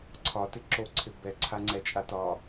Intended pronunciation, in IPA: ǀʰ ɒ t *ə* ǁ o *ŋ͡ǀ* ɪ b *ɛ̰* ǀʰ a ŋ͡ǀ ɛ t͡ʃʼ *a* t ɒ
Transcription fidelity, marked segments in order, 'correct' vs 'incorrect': incorrect: ɪ, incorrect: ǀʰ, incorrect: ɛ, correct

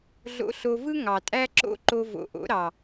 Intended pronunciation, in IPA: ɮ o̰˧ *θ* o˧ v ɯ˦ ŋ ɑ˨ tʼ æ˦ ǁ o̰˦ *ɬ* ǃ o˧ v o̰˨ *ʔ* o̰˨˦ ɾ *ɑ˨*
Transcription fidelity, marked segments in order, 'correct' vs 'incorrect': incorrect: ɬ, incorrect: none, correct, correct

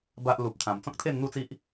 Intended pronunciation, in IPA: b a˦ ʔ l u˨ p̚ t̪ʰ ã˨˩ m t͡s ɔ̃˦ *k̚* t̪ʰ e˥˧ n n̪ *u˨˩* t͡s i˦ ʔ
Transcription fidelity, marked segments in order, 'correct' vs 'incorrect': correct, incorrect: u˥˧

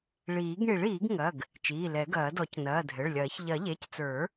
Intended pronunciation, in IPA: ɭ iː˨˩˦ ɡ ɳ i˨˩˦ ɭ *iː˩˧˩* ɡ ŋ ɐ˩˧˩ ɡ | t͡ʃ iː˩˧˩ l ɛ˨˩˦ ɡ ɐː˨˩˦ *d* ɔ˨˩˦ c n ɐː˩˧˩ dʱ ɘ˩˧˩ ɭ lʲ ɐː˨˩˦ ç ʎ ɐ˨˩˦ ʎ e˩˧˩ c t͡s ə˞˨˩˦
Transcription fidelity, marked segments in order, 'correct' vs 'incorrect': incorrect: iː˨˩˦, correct

